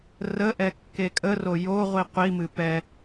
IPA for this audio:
r ə ʔ ɛ kː e kʼ ə r o j o ʁʷ i qʷ i m ɨ p ɛ

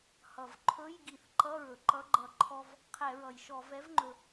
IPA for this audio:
h ʌ˩ v ǃʰ ɵ˧˥˧ j ɡ i˧˩˧ θ ǃ ʌ˧˥˧ ɹ ɵ˩ ǃ ʌ˧˥ ɡ͡ǃ ʌ˧˩˧ ǃʰ ɔ˥ v | qʰ ɛ˧˩˧ ɹ ʌ˩ j ʃ ɔ˧˩˧ v ɛ˧˥ v ŋ͡ǃ ɵ˩

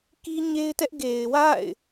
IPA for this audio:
k i˦ ɲ e˦ ɪ̯ t ɛ˦ ʔ ɡ e˨ ɪ̯ w a̰˦˨ ɪ̯

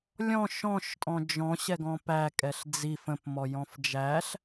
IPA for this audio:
lʲ ɔ̃ ʃ ɔ̃ ʃ tʼ ɔ̃ d͡ʒ ɔ̃ ɕ ɛ ɡ ɔ̃ p æ kʼ ɛ ɬ d͡z i f ə̃ p m ɔ j ɔ̃ f d͡ʒ æ ɬ

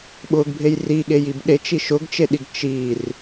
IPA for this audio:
ɓ ʊ ɡ bʱ e j r i ɠ e j i b ɗ e t͡ʃ i ʃ ʊ ɡ t͡ʃ e ɗ i ɡ t͡ʃ i r

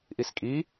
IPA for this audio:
ʔ i s kʼ i

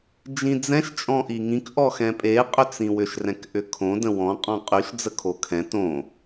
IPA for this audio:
d͡ʒ ĩ d͡z ɛ̃ ʃ t͡ʃʼ ɔ̃ ʔ i ŋ ĩ k ʔ ɔ x ɛ̃ pʼ e qʼ ʏ t͡s ĩ w ʏ ʃ r ɛ̃ k ʔ ʏ kʰ õ d ə̃ w ɔ̃ qʼ ɔ̃ qʼ y ʃ d͡z ə kʰ o kʰ ɛ̃ t õ

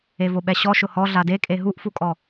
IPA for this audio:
e v o ɓ ɛ ɕ ɔ ʃ ʊ h ɔ ɮ a d e kʼ e ɦ u ʔ f u kʼ ɔ

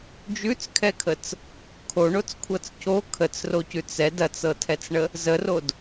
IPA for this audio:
d͡ʒ ʉ t͡s kʰ ɛ kʰ ə t͡s | kʰ o ɳ o t͡s kʷʰ ɤ t͡s c o kʰ ə t͡s r o c ʉ t͡s ɛ d ɐ t͡s ɤ tʰ ɛ t͡s ɳ ə | z ə r o d

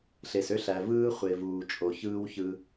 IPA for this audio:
ɬ e˨ s ø˦ ɬ æ˨ v ɯː˦ χʷ e˨ v uː˨ t͡ʃʼ o˨ ç ɯː˦ w ç ɯ˦

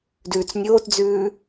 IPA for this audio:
d ʉː t͡s nʲ oː t d͡z ʉː

